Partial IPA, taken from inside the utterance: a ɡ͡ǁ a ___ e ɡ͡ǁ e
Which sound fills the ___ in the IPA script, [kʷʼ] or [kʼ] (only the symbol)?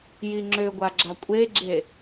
kʷʼ